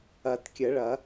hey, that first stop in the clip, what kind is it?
plain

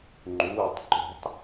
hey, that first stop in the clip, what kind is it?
click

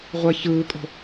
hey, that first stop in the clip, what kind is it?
ejective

